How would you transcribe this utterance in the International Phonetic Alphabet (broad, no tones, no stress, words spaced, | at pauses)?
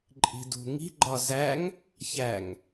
ǃʼi̤dṳŋi̤ ɡ͡ǃɒzæŋ | çæŋ